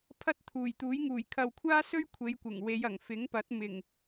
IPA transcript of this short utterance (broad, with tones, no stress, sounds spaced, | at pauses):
pʰ ɐ˥ t̚ t̪ʰ uː˨˩ j t̪ uː˨˥ j ŋ uː˨˩ j kʰ ɐ˨ w kʷʰ aː˥ s ɵ˥ ɥ kʷʰ e˨˧ j kʷ ɪ˨˩ ŋ w e˨˧ j ɐ˨˩ ŋ f ɪ˨˥ ŋ p ɐ˨˥ t̚ m ɪ˨˩ ŋ